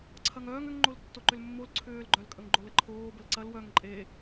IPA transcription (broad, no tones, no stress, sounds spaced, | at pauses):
ǀʰ ɐ ŋ œː ŋ ʏ ŋ ŋ͡ǃ o l tː o ǃ ʏ l mː o l ǀʰ ʏː l ɡ͡ǃ œ l kʼ ə ŋ ɡ͡ǃ o l ə ǃʰ oː b ə l ǀ ɐ l w œ ŋ ǃʼ e